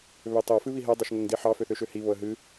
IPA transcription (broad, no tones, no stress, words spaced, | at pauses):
βøtˤo fɨβiɦɛ dˤoʃŋoŋdiħɑ føθøʃøhi βoə̯ɦɨ